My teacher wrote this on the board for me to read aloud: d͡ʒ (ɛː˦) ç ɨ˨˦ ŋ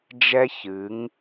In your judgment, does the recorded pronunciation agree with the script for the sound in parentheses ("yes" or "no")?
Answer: no